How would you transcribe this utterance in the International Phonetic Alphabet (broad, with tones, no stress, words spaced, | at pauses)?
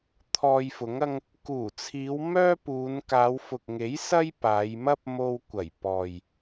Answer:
t̪ʰɔː˧jfʊ˨˥ŋɐ˥ŋ | kuː˨˩t͡sʰiː˨˧w mœː˥puː˨˧n kaː˨˧wfʊ˨k̚ŋe˨˥j sɐ˥jpaː˨˧jmɐ˥p̚ mo˧wkʷɐ˨˩jpɔː˨j